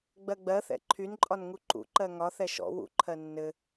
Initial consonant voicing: voiced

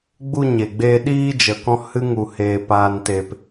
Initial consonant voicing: voiced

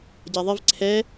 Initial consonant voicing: voiced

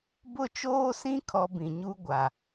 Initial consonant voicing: voiced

